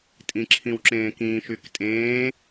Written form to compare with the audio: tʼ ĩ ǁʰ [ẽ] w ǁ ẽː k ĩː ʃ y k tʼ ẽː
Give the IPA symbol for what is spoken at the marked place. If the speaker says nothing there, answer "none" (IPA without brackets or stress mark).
ĩ